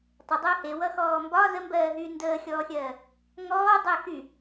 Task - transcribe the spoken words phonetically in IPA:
tˤ ə dˤ əː h e w ʌ x ɔː m b ɒ z ə m b ɜː ɦ yː n d əː xʲ ɔː xʲ ɜː | ŋ ɔː dˤ əː x y

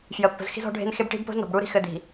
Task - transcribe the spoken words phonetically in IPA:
f j ə˨ pː ə̤˨ z x i̤˦ z ɔ̤˦ ɖʱ e̤˦ n x e˦ b ʈ i̤˦ b p o̤˦ z n ɔ̤˨ b ɽ u˦ ɾ i̤˦ x ɘ˨ d i̤˨

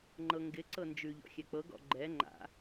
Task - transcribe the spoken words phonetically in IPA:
ŋ͡ǃ ɤ ŋ ɡ ɪ ǀ ɤ n d͡ʒ ʉ ʎ ɔ̰ xʲ ɛ k͡p ɤ ɡ ɔ̰ ɡ͡ǃ ɛ ŋ͡ǃ a̰

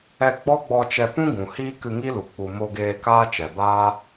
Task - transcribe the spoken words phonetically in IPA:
ɛ˧ ɡ͡b ɔ˦ ɡ͡b ɔ˧ t͡ʃ ɛ˧ p ũ˦ ɡ ũ˨ h iː˦ k ɨ˧ ŋ i˦ l u˨ k͡p u˨ m o˧ ɡ eː˧ k aː˦ t͡ʃ ɛ˨ b aː˦

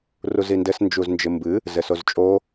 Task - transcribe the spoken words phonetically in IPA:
r u z i n d ɘ s n d͡ʒ u z n d͡ʒ ɘ m b ɨ | z ɘ s o z t͡ʃʼ o

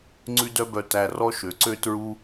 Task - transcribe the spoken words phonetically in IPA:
ŋ͡ǀ ʉ˥ d œ˥ b œ˧ t æ˧ r ɔ˥ ʃ ø˩˧ ǀ ø˥ t ɹ u˥

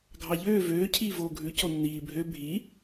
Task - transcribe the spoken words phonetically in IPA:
ɡʱ ɑ ʎ øː v øː cʰ iː v oː ɡʱ ʉ c o nː iː bʱ ø bʱ i

